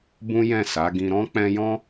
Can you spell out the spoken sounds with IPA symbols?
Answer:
b ũ˦ j ɛ̃˦˨ s a˨˦ ɡ ĩ˧ ɾ ɔ̃˦ k͡p ɛ̃˧ j ɔ̃˦

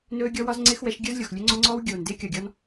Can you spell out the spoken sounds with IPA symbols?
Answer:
n ɵː˦ ɡʲ ɔ˦ w ɒ˦ z ŋ͡ǀ ɪː˦ x w ɛ˨˦ ʃ ɡʲ ə˞˦ z lʲ o˨ x lʲ ɵ˦ ŋ͡ǀ ɔ˦ ŋ͡ǀ ɔː˦ w ɡʲ oː˨ n d ɪː˦ kʲ ɒ˨ ɡʲ ɔ˦ n

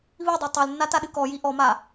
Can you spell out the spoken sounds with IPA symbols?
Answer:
β i dˤ i tˤ o l nː a t a ɗ ɨ k ɔ j i ʔ ɔ m a

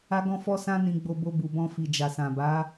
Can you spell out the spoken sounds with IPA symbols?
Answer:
a˦ ɡ ɔ̃˦ f ɔ˦ s ã˦ n ĩ˧ ɡ͡b o˧ b o˧ b u˨ b ɔ̃˧ f i˨ d͡ʒ a˨ s ã˨ b a˨˦

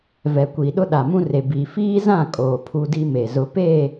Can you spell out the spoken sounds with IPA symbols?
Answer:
v ɛ˨ kʷ i˨ ɗ ʊ˦ ɗ a˨ m ũ˦ r e˨ b i˨ f iː˦ z ã˦˨ kʼ oː˨ pʰ u˦ d i˦ m e˨ z ʊ˦ p eː˦˨

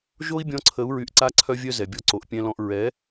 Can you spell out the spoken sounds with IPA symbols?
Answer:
ʒ o˦ i̯ bʲ ɔ̃˧ ǀʰ ə˨˦ u̯ ɹ y˧ ʔ ǀ a˦ ǀʰ œ˦ vʲ œ˦ z ɛ˨ bʲ ɔ˧ ǀ o˨ ʔ pʲ ɛ̃˧ l ɔ̃˧ ʔ ɹ ɛ˨˦

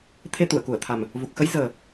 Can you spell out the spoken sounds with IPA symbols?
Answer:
t̪ʰ e˧ t̪ u˧˩ ə̯ k u˧˩ ə̯ t̪ʰ a˨˩ m | v u˨˩ k̚ x ə˨˦ j z əː˨˩

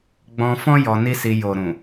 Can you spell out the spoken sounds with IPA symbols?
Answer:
ɡ͡b ɔ̃˧ f ɔ̃˦ j ɔ˧ n i˦ s i˧ j o˨ ɾ ũ˨

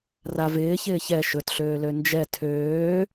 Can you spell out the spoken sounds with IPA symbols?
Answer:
r a v ɪː ç ɪː ç ɛ ʃ ɵ t ɬ øː l ø n d͡ʒ ɛ tʰ øː

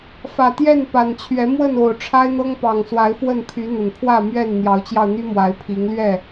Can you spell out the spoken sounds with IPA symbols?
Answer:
f ä˨˩ t̪ j ɛ˥˨ n p a˨˩ n t͡ɕʰ ɥ ɛ˨˦ m w ə˥˨ n o˨˩ ʊ̯ ʈ͡ʂʰ a˦ ɪ̯ n̪ ɤ˦ ŋ p ɑ˨˩ ŋ s w a˨˦ ɪ̯ f w ə˥˨ n pʰ y˨˦ n̪ ə˨˩ n pʰ w ä˥˨ m ɥ ɛ˥˨ n n̪ j ɑ˨˦ ʊ̯ t͡ɕ j ɑ˧ ʊ̯ n̪ y˦ m w a˨˦ ɪ̯ pʰ i˨˦ ŋ l ɥ ɛ˥˨

